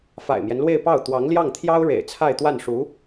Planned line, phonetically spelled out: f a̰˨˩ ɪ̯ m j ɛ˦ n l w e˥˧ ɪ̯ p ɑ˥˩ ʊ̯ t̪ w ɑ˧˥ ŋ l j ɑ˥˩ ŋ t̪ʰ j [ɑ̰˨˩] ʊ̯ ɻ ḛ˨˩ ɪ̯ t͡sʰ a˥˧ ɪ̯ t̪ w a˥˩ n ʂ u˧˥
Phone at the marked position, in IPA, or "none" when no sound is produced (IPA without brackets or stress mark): ɑ˥